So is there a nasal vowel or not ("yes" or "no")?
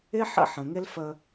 yes